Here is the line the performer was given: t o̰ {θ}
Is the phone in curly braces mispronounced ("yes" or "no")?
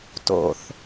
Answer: no